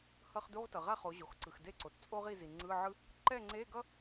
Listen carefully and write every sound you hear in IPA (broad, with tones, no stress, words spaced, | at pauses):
hʌ˧χ du˧˥˧ʁtʌ˩ʁa˥˨χo˩˧ ʑo˩xǀɯ˩xde˥˨ǀo˩t t͡sʼo˥ ʁi˥˨zi˩ŋ͡ǀɯ˧˥˧ʕɯ˥ | ǃɛ˥˨ŋ͡ǀe˧˥˧ɡʌ˥